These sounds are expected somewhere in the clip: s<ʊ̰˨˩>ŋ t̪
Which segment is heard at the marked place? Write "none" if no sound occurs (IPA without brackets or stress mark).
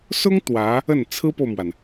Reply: ʊ˥